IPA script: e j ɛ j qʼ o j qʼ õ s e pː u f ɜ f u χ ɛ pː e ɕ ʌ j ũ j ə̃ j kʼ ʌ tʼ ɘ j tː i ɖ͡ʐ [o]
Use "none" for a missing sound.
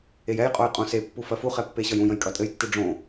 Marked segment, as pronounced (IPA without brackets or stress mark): õ